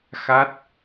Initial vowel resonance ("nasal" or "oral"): oral